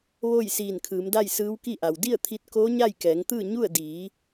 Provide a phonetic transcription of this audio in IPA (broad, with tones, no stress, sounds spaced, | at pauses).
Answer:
ʋ oː˥˨ j s iː˧˩ n kʰ ɯː˩˧ m d a˥˨ j s ɯː˧˥ w k i˥˨ ʔ a˩ w d i˥˨ ə̯ t̪ʰ i˧ t̚ k oː˧˥ ɲ a˥˨ j k ɛː˩˧ ŋ t̪ ɯː˥˨ ɲ u˥˨ ə̯ d iː˩˧